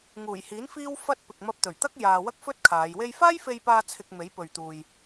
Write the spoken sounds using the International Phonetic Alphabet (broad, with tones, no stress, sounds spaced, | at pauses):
ŋ uː˨˩ j h iː˨˥ n f iː˥ w f ɐ˥ t̚ p ɪ˨ k̚ m ɐ˧ p̚ t̪ ɵ˨˩ ɥ t̪ ɐ˥ k̚ j aː˨ w ɐ˥ k̚ f ɵ˥ t̚ kʰ aː˨˧ j w e˧ j f aː˥ j f e˧ j p aː˧ t͡sʰ ɪ˧ k̚ m e˨˥ j p ɵ˨ ɥ t̪ uː˨ j